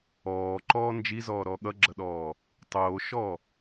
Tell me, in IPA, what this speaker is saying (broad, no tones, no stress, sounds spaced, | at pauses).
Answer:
ɔː ǃ ɔː n d͡ʒ i z ɔː ɾ ɔ ɠ ʌ ɡ͡ǁ ʌ ɗ ɔː | tˤ oː ʃ ɔ